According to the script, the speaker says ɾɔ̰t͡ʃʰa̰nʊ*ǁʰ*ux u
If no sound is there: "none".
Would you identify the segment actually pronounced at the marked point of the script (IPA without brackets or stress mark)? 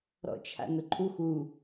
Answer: ǃʰ